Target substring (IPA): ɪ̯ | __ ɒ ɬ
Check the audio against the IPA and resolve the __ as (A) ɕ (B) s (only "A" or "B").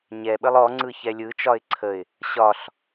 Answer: A